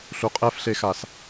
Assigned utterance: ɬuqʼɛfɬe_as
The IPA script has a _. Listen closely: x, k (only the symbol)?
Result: x